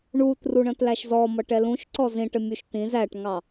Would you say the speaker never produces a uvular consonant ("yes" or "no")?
yes